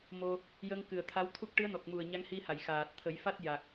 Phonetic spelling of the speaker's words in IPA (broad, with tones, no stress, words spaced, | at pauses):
mo˧ | jə˧ŋkɨ˨˩ə̯t̪ʰa˧˥wt̪ʰu˦˥k̚ ʈɨ˧˥ə̯nɔ˨˩k̚ mu˨˩ə̯ ɲa˧˥ŋhi˧ha˨˩˨j xaː˨˩t̚t̪ʰə˨˩˦jfa˦˥t̚ ja˨˩k̚